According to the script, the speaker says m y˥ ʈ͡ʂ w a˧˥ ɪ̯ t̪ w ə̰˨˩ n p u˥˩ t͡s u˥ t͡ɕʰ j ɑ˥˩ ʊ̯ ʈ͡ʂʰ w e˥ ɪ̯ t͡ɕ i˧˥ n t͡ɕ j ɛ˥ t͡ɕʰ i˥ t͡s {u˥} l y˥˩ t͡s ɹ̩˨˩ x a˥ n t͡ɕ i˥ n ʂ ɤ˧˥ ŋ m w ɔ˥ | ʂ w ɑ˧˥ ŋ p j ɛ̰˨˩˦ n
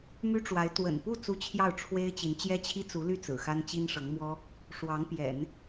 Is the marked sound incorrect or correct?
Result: incorrect: u˧˥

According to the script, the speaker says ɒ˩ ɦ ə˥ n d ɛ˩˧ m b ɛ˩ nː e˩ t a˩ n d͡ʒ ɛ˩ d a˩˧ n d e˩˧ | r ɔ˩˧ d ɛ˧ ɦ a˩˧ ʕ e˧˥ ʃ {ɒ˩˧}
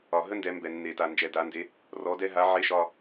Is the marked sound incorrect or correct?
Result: incorrect: ɒ˧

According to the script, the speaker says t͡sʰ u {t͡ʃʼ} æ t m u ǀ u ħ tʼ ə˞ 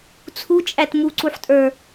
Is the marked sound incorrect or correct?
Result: correct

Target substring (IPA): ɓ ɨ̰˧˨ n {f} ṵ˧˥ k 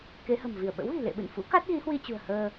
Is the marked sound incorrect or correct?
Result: correct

